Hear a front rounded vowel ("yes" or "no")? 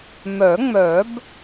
yes